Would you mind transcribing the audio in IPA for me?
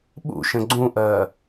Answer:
ɓṵʃə̃ ɡ͡ǀũʔɜː

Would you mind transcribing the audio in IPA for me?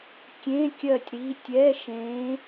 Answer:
kʲẽ˧˥˧kʲɜ˦˨tʲ ɾi˧˥˧ tʲɛ˧˥˧ʃẽ˧˥

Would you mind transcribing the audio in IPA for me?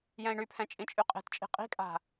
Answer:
jɛ̃i̯ɳypʰɛ̃ t͡ʃʼĩt͡ʃʼyqʼe̤tt͡ʃʼi̤ qʼi̤kʼa̤

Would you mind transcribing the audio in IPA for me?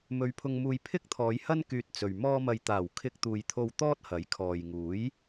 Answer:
mɵ˨˧ɥpʰʊ˧ŋmuː˧j pʰɪ˥k̚t̪ʰɔː˨˧jhɐ˥n kyː˧t̚t͡sɵ˨ɥ mɔː˧mɐ˨jt̪aː˨˩w kʰɪ˧k̚t̪uː˨jt̪ʰo˧w t̪ɔː˥t̚hɐ˨˥jkʰɔː˨j ŋuː˨˥j

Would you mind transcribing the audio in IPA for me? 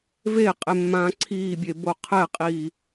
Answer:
veqʼe mːãːǀʰiːbʲe boqʰɛqʼiː

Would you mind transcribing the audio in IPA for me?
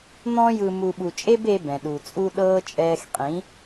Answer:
n̪ɔ̃˧jɯ˨ mu˨ɓu˨t͡ʃʼe˦be˧ bɛ̃˨ɗu˨t͡sʼu˦ ɗɤː˧ t͡ʃʼɛː˧xqʼĩ˨˦

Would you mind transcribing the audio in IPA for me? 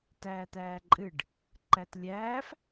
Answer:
tæːt̪æːǃʼɨɖ | ǃætlʲæːf

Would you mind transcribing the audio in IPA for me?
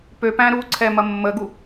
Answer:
pøpæ̃ ɾuǀʰɛ mɐmːəɡu

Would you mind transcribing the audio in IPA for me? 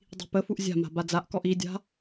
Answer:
dˤi̤pəfuʔ zʲa̤ma̤ bad͡zaʔkɔʔ idʲa̤

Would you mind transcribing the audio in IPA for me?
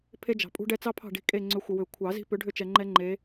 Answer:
pʰe˦d͡ʒɑ̤˨pʼṳ˦ɖɛ˦ t͡sɑ˦pʰɑ̤˦˨ ɖi̤˦˨ kʼe˦˨ŋ͡ǀʏ˨˦ xʷə˨wʏ˨˩˦ kʷʰɑ˨˩˦zi̤˦ pʏ˨˦ɖʱʏ˦˨t͡ʃɛ˨ ŋ͡ǃɛ˦ŋ͡ǃe˨˦

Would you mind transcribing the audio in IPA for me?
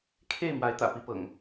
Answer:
kʰe˥˨ɪ̯ mwa˨˦ɪ̯t̪ä̰˨˩pi˨˦ pɤ̰˨˩ŋ

